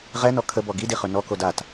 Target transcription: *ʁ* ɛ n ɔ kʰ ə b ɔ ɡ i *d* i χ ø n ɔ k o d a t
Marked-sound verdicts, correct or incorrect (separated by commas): correct, correct